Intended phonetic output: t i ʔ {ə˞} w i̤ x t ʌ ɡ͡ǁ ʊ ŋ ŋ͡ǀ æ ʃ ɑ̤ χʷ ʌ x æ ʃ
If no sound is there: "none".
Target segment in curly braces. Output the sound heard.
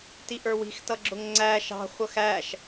ə˞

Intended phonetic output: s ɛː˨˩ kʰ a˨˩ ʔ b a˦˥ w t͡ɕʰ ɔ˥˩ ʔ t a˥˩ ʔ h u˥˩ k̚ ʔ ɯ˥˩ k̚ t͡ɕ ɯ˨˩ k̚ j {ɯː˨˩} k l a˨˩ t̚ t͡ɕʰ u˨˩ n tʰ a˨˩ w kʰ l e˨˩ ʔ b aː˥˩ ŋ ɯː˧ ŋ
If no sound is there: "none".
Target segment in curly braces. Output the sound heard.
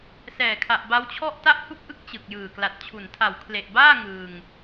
ɯː˨˩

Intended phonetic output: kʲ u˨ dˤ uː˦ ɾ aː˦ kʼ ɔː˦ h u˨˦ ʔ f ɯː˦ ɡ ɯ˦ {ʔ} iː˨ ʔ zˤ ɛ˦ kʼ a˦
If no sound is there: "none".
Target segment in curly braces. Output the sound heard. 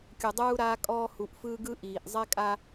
ʔ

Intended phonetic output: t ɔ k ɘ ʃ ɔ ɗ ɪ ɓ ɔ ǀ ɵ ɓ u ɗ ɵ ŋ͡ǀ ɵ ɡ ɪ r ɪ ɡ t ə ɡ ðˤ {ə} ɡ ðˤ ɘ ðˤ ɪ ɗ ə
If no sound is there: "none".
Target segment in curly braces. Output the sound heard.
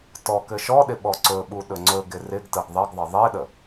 ə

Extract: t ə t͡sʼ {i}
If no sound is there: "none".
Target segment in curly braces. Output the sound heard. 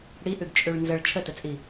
i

